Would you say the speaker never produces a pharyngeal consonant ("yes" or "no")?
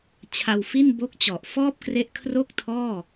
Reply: yes